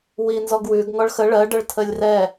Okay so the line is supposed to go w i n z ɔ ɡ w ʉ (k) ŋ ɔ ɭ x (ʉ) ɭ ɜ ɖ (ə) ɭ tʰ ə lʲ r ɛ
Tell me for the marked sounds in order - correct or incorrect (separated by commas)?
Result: incorrect, incorrect, correct